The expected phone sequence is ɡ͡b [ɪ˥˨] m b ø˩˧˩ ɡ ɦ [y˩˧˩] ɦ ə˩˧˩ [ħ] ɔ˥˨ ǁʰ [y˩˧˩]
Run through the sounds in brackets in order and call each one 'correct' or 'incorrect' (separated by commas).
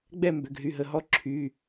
incorrect, correct, incorrect, correct